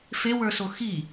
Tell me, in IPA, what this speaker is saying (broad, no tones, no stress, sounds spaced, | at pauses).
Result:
f e w ə˞ s o x i